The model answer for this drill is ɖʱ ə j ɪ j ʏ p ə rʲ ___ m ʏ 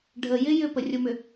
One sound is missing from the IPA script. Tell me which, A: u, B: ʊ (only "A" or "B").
B